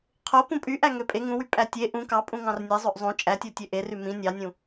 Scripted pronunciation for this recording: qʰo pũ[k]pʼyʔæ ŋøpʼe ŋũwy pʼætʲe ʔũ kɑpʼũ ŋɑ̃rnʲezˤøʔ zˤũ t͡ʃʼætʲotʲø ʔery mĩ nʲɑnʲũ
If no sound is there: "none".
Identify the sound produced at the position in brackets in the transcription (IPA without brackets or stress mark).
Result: none